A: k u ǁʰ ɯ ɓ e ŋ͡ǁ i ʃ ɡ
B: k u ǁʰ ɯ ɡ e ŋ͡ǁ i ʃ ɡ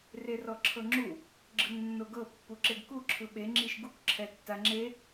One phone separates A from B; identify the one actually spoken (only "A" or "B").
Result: A